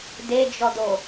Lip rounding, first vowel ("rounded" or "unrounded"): unrounded